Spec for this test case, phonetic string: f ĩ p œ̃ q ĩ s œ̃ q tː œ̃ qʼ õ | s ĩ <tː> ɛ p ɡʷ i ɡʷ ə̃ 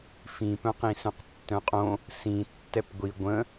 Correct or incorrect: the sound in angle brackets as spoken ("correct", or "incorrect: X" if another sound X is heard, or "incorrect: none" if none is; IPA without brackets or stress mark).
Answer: correct